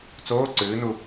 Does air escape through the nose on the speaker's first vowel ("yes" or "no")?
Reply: no